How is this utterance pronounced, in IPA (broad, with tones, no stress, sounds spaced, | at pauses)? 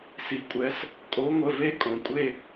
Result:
s i˩ kʷʼ ɛ˨˦ s | kʼ o˨˦ ŋʷ ə˩˧˩ v e˦ kʼ õ˩ kʷʼ e˦˨